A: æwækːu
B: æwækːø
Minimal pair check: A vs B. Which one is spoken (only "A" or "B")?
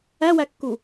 A